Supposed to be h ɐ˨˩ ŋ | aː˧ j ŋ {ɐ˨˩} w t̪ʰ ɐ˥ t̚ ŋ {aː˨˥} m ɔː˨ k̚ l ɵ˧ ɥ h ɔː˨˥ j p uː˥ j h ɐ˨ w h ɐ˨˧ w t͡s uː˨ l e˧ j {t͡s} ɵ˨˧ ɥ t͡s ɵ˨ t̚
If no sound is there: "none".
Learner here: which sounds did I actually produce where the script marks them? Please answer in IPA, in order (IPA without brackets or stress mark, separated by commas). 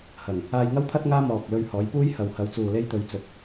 ɐ˥, aː˥, t̪